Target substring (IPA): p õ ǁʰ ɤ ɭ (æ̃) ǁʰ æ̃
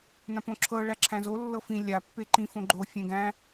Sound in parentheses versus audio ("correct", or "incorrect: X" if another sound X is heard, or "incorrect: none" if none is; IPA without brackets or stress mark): incorrect: æ